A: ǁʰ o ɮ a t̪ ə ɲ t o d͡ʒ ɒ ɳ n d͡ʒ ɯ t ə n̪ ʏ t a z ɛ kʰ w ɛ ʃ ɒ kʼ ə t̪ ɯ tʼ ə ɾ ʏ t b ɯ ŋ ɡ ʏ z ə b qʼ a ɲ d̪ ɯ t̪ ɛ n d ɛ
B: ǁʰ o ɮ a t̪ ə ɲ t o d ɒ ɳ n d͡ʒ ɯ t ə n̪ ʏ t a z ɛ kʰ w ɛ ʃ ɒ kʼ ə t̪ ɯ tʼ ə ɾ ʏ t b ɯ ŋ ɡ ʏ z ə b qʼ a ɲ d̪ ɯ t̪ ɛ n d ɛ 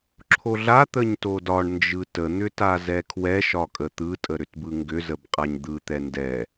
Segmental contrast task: B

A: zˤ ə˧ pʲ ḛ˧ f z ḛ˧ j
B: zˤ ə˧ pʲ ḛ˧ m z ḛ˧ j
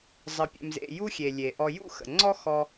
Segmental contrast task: B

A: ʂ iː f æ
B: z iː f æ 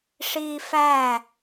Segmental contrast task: A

